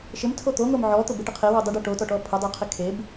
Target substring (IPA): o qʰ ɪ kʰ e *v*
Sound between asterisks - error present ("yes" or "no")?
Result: yes